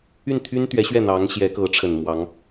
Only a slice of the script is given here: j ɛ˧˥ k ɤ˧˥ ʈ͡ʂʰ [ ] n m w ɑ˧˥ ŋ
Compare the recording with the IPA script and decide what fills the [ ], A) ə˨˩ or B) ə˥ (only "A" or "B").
A